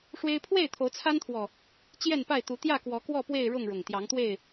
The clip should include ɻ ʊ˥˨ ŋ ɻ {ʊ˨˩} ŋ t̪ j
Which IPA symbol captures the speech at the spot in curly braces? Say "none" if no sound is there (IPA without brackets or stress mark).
ʊ˨˩